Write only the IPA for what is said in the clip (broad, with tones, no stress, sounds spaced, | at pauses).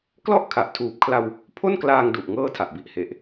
k l ɔ˥˩ ʔ kʰ a˨˩ ʔ tʰ uː˨˩ p̚ kʰ l a˧ w | pʰ o˥˩ n k l aː˧ ŋ d u˨˩ ʔ ŋ ɤː˥˩ tʰ a˨˩ ʔ b i˨˩ ʔ h e˨˩ ʔ